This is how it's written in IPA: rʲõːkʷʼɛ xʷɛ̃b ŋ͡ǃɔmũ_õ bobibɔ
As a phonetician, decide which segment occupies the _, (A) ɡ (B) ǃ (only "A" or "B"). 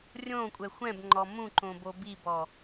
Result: B